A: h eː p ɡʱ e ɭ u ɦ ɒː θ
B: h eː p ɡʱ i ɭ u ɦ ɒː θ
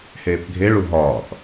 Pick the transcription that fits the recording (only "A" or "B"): A